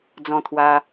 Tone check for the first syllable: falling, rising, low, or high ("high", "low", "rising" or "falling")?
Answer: falling